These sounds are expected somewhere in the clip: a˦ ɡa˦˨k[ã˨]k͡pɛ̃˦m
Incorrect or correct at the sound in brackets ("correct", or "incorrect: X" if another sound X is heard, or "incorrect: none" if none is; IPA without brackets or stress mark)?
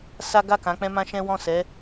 incorrect: ã˨˦